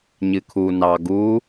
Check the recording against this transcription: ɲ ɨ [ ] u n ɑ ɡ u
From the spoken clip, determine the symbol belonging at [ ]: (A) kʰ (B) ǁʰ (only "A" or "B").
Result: A